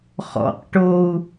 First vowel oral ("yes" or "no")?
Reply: yes